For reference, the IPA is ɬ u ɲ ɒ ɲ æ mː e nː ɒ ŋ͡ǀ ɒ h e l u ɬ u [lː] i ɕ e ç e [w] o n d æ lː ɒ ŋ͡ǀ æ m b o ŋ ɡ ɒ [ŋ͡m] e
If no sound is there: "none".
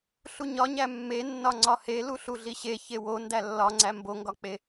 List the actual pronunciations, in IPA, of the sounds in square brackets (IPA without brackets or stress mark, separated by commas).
ɮ, w, k͡p